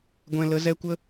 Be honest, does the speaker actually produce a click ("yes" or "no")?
no